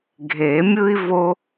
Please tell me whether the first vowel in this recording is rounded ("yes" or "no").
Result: no